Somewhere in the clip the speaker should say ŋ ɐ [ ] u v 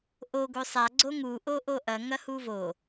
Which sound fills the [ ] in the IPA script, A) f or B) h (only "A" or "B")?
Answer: B